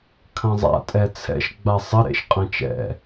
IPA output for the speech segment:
kʰ ɐ̃ zˤ a̰ tʼ ɛ t͡sʰ ɛ̰ ʃ ɡ͡b a sˤ ɘ ɾ ḛ ʃ qʼ ɐ̃ t͡ʃ ɛ̰

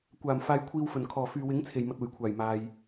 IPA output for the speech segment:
kʷ aː˨˩ m f aː˨ j kʷʰ iː˨ w f ɵ˨˩ n kʰ ɔː˨˩ f yː˨ w ɪ˨˥ ŋ t͡sʰ e˨˩ j m ɐ˨ t̚ uː˨˩ j kʷʰ aː˨˩ j m aː˨ j

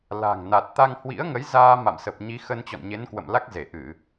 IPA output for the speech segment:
l a̤˨˩ ŋ n a˨˩ t̚ t̪ a˧ ŋ h w ḭ˧˥ ə̯ ŋ ə˨˦ j z aː˧ m a̰˧˨ m s ə˨˩ p̚ ɲ i˨˦ x ə˧ n t͡ɕ ɔ̰˧˨ n ɲ e˨˦ n k w ə̰˧˨ m l a˦˥ k̚ z e˧˩ ʔ ɨ˧˩˨

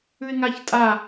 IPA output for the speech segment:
ʉ ɪ̯ ŋ a ç tʼ a

